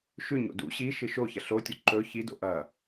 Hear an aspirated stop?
no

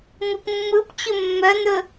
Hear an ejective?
no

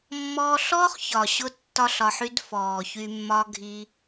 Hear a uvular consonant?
yes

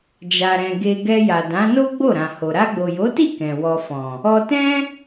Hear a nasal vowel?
yes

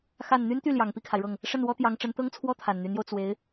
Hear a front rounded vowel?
yes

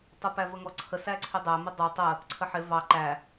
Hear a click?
yes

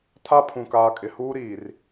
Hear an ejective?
yes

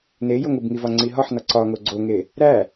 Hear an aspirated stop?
no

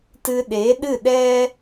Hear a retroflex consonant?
no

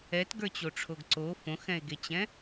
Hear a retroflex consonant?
yes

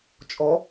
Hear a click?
no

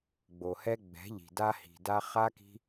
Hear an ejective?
no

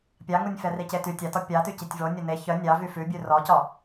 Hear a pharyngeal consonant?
no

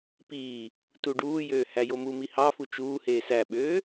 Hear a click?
no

